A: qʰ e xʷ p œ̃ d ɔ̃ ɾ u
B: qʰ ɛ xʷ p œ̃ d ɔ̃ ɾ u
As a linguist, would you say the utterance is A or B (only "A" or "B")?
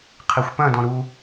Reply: A